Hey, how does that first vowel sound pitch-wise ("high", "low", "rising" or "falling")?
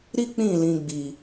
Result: high